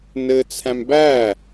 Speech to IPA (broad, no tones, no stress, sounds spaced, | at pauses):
n ɘ t͡sʰ æ̃ m b æ